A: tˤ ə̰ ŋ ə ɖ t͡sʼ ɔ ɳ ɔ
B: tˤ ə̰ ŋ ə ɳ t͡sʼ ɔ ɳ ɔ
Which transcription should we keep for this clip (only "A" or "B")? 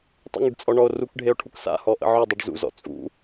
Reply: A